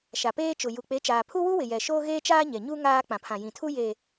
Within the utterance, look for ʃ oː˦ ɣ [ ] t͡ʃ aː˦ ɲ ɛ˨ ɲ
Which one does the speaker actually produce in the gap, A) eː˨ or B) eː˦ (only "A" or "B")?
B